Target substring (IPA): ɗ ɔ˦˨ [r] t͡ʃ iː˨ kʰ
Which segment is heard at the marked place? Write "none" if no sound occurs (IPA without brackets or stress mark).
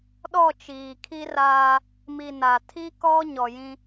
none